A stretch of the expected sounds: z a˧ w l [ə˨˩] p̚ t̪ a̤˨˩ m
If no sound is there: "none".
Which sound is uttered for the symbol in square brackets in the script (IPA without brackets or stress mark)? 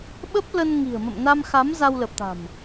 ə˨˩